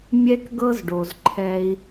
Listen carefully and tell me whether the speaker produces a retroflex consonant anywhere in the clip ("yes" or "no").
yes